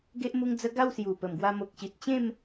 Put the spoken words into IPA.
ɡ e˦ ʔ m u˧ ŋ d͡z ə˧ ɡ a˥˧ w s j u˨˩ p ə˨˩ m ɡ w a˧ m o˨ k̚ ɕ i˨ t̚ t͡ɕ ẽ˥˧ m

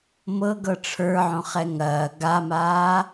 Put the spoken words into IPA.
m ɤ ɡ ɤ ʈ͡ʂʰ ə˞ ʕ õ χ ɛ ŋ ɐː ɡ a m aː

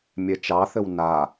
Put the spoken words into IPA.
mʲ ɛ t͡ʃ ɑ θ ɘ w n a

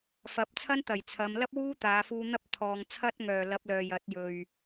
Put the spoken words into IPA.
f ɐ˨˥ p̚ t͡sʰ ɐ˥ n t̪ ɐ˨˩ j t͡sʰ ɐ˨˧ m l ɐ˥ p̚ w uː˥ t̪ aː˨˧ f uː˧ n̪ ɐ˥ p̚ t̪ʰ ɔː˨ ŋ t͡sʰ ɐ˥ t̚ ŋ œː˨˩ l ɐ˨˥ p̚ l œː˨ j ɐ˨˥ t̚ j ɵ˨ ɥ

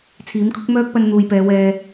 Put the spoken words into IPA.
t͡sʰ iː˨˥ m kʰ ʊ˥ k̚ m œː˥ k̚ p ɐ˧ n n̪ uː˨ j p ɛː˨˧ w ɛː˧

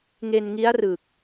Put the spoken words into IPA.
ŋ e˧ n ŋ i˦˥ a̯ r ɯː˨˩ k̚

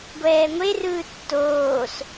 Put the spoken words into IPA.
ɡʷ ɛː ŋʷ e r ɯː tː oː s

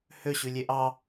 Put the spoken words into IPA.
h ø ɕ ʉ lʲ e ʔ ɑ

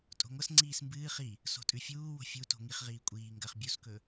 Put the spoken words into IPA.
tʼ o̤ ŋʷ ɐ s ŋ͡ǀ iː s m b ɨː χ i | s o̤ tʼ ʉ fʲ uː w o̤ fʲ u t o̤ ŋ i χ ʁ iː kʷʼ iː ŋ ɡ ɐ χ bʲ u s k ɵ

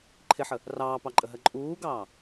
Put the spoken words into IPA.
ǃʰ ɪ ħ ə | r ɑː p ɑ ǃʼ ə ɦ ɜ ǃʼ uː ɡ ɑː

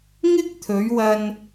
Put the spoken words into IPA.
ŋ ɪ˥ k̚ t̪ʰ ɵ˨˧ ɥ w ɐ˧ n

